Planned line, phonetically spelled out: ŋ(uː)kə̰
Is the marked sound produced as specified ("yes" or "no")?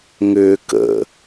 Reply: no